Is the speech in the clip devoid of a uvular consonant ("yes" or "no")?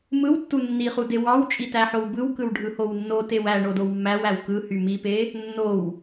no